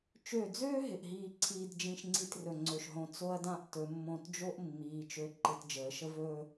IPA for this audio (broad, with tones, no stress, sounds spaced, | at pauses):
t͡ʃ ø˧˩ d͡z øː˥ ɦ ɪ˧˩ ʔ ɦ iː˧ ǀʰ iː˧ d d͡ʒ ĩ˥˧ ʃ ŋ͡ǀ i˥˧ t r ɵ˧˩ ŋ͡ǀ ɵ˧˩ ʃ ɦ õ˧ t͡s o˥ ɐ̯ d ã˥ ʔ t ɵ˩˧ mː õ˧˩ t d͡ʒ o˥ ʔ mː iː˩˧ t͡ʃ ø˧˩ ǃ ɪ˧ t d͡ʒ əː˩˧ ʃ ə˥ v ɵː˥˧